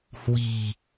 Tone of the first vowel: low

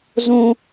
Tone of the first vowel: high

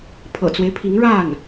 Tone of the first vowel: low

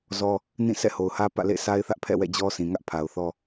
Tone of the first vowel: high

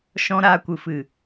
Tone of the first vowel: high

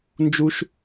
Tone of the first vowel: high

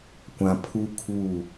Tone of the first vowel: low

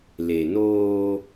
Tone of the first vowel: low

